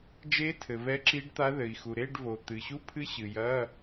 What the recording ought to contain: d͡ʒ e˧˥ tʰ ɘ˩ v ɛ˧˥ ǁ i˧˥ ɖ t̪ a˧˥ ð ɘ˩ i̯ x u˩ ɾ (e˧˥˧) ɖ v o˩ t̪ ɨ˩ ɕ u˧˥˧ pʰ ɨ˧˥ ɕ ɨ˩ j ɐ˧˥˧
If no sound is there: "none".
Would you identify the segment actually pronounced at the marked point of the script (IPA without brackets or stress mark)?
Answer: e˧˥˧